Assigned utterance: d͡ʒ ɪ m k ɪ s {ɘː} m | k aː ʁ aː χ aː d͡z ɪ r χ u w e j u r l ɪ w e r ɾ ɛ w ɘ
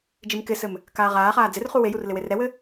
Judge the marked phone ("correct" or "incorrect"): incorrect